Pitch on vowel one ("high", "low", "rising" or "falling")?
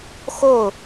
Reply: falling